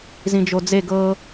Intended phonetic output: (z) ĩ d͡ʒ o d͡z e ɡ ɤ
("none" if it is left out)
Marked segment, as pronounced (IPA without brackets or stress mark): z